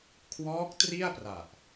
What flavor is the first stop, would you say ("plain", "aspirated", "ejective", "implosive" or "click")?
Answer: aspirated